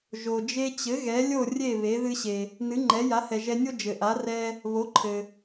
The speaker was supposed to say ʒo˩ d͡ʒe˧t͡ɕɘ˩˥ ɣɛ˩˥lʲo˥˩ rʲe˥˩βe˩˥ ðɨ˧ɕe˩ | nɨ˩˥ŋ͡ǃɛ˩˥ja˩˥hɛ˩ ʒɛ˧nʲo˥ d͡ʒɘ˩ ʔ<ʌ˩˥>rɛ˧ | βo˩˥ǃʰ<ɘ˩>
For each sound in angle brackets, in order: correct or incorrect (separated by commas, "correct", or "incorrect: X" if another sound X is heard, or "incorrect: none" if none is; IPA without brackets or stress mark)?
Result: incorrect: a˩˥, correct